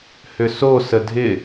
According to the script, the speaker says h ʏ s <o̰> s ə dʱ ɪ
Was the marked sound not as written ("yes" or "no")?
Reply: yes